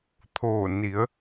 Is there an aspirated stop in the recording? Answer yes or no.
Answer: yes